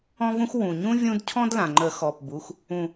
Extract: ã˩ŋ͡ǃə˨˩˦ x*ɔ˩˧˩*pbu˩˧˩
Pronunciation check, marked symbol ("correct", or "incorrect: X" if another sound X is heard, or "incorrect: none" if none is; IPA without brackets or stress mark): correct